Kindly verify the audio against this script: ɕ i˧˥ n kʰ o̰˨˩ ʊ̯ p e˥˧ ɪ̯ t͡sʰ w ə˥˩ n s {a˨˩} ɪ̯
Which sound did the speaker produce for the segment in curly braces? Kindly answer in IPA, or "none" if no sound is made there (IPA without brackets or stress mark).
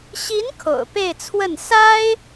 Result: a˥